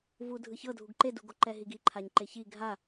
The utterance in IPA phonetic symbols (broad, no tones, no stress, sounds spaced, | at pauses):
v u dʱ ɯ ç ɤ dʱ u ɡ ǃ e d u ɡ o ǃ ɛ ɦ i ɡ i ǃʰ a ɲ ǃ e ç i ɡʱ a